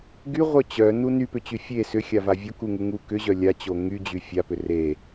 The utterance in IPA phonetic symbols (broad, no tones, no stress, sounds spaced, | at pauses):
ɡ y ʁʷ œ t͡ɕ œ n u n y p ʏ t͡ɕ y fʲ e s ʏ xʲ a v a vʲ o k u ŋ u ŋ u k ʏ ʑ œ lʲ a t͡ɕ o ŋ y d͡ʑ y fʲ a p ʏ r e